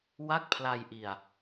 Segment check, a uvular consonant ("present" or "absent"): absent